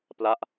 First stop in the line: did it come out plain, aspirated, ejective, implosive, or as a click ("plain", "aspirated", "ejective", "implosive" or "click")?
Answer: plain